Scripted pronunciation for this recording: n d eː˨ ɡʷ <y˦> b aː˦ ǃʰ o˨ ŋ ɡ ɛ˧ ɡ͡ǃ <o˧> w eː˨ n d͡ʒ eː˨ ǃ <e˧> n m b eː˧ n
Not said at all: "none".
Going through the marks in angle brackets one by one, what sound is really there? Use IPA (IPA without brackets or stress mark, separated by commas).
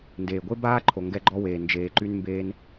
e˦, ɔ˧, y˧